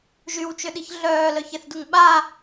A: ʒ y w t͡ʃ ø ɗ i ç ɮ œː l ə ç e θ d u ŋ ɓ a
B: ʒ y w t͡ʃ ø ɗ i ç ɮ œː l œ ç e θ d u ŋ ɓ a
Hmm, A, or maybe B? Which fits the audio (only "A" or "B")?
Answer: B